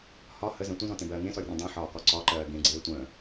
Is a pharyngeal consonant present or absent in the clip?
present